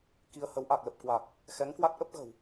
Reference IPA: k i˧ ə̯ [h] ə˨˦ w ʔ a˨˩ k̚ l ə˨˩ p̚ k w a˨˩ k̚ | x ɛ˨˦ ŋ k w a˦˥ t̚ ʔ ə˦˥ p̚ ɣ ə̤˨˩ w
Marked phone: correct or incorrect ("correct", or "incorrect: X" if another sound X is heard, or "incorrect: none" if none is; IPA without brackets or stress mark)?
correct